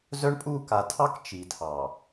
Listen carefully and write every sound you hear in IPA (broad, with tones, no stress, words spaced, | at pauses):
zœ˦ɳpʼu˦˨ ka˨tʰɑ˦k t͡ʃi˨tʰɑ˨